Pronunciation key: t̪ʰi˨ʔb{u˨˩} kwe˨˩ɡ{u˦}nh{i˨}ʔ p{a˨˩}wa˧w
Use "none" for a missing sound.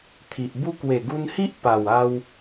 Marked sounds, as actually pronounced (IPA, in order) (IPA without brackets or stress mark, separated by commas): u˦, u˧, i˦, a˨˩